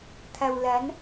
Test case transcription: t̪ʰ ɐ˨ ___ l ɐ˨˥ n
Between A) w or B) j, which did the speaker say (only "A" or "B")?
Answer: A